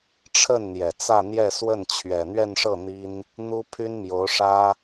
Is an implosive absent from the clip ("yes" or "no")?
yes